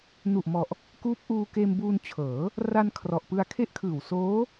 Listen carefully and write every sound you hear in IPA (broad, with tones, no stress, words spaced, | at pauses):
nu˨˩ʔmɔ˨˩ʔ | kuː˦˥p̚ʔuː˧ keː˧mbuː˧n t͡ɕʰɤː˩˦ | ra˧n kʰrɔ˨˩ʔpɯ˧a̯kʰe˥˩ʔkʰɯː˨˩w soː˦˥